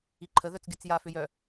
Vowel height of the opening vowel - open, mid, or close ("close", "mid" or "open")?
close